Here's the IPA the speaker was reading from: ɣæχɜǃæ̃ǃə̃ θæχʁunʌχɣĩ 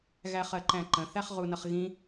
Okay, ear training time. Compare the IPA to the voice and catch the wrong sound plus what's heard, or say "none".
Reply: none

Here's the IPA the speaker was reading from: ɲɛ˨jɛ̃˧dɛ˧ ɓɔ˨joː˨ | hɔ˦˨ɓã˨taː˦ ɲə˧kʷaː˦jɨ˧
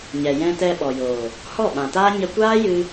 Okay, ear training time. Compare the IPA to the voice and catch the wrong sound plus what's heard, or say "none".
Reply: d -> t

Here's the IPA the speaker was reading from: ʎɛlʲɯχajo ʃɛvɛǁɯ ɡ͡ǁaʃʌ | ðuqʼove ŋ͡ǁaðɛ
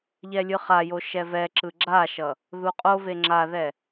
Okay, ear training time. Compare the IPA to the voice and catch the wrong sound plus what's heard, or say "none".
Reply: none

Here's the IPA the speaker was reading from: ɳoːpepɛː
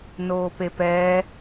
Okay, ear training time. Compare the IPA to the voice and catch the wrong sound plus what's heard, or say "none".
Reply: ɳ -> n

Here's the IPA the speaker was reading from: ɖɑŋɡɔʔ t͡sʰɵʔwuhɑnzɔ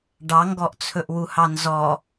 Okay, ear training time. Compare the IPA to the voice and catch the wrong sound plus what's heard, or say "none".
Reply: none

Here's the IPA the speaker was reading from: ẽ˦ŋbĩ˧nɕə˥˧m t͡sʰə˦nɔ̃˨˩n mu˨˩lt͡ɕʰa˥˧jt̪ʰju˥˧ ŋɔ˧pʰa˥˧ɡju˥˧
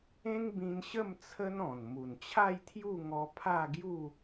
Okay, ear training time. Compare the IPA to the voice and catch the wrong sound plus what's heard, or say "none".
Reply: l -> n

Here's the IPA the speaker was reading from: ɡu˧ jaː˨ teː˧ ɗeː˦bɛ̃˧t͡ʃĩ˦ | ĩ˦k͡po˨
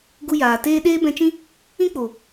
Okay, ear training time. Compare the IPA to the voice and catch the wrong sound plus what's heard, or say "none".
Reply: none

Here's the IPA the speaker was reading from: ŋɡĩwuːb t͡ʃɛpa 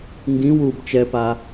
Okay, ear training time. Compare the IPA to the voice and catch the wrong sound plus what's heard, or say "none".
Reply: none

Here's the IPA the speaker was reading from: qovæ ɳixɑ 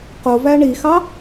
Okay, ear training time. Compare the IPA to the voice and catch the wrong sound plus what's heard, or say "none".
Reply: none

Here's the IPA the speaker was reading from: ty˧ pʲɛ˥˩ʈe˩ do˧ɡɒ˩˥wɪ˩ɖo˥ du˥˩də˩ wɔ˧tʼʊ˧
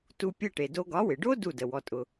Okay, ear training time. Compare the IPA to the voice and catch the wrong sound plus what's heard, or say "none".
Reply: y˧ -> u˧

